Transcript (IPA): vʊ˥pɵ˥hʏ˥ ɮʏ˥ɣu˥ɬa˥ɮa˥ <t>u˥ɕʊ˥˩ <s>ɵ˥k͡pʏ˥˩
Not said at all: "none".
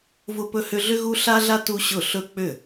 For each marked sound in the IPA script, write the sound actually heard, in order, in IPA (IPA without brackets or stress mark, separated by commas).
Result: t, ɬ